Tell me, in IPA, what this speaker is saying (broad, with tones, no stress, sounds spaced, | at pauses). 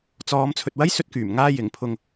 t͡s ɔː˨˧ m t͡sʰ ɵ˨ t̚ w ɐ˥ j s ɵ˧ t̚ k yː˨˩ m ŋ aː˧ j ɪ˨˩ ŋ pʰ ʊ˨ ŋ